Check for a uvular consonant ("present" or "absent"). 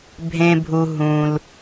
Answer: absent